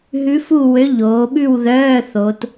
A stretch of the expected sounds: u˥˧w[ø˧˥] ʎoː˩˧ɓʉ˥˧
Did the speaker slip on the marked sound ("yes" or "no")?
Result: no